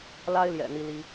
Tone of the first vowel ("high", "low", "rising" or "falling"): high